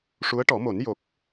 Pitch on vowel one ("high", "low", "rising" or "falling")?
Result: rising